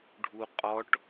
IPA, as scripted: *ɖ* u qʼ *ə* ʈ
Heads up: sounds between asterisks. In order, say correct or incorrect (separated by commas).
incorrect, incorrect